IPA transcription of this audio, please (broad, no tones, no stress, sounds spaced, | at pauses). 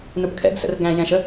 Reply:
n u p kʰ ɛ̰ ɡ s ə̰ r ɡ æ̃ j ɛ̃ ʃ ə